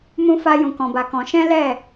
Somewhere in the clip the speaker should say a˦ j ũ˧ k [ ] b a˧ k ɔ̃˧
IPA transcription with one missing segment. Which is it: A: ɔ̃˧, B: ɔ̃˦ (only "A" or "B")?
A